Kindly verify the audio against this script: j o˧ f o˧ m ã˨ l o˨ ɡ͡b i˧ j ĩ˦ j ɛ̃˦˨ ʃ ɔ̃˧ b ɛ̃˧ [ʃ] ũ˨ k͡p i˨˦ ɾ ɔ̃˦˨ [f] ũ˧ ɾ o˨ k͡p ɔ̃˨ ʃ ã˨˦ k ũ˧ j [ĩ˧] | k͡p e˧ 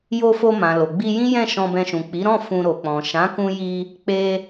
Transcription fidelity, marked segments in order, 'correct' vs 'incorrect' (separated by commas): correct, correct, incorrect